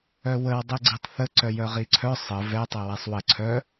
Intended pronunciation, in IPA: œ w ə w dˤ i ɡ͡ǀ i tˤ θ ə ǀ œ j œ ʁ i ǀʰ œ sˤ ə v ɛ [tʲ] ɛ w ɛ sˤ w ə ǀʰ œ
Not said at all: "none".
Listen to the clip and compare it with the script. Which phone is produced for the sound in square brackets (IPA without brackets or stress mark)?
tˤ